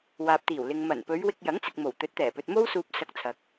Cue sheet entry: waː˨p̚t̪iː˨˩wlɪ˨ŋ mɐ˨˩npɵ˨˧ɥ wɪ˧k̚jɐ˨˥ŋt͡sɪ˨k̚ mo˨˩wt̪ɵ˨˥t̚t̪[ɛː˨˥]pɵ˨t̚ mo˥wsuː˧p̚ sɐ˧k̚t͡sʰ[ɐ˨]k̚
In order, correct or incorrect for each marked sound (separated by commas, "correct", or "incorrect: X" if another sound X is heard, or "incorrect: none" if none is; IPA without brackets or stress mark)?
incorrect: ɛː˨˩, correct